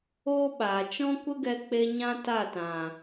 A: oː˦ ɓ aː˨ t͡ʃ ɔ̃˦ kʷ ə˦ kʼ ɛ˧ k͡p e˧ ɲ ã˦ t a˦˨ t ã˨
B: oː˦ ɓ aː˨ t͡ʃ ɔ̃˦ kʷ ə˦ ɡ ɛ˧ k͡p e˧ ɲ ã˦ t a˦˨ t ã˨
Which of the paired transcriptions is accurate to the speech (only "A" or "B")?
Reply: B